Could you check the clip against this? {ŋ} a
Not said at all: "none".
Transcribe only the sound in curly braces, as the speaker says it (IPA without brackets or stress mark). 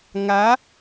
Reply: ŋ